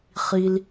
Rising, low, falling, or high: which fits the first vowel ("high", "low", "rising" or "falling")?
low